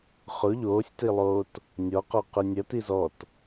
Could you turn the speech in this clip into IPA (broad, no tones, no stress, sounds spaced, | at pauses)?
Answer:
χ ʊ ʎ oː sʲ t i lˠ oː t | nʲ ɔ q ɔ q ʊ nʲ ɐ t i z ɔ t